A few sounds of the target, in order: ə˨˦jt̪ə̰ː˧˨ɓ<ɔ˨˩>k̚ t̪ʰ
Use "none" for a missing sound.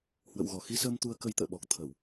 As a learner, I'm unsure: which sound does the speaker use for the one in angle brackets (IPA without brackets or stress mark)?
ɔ˨˩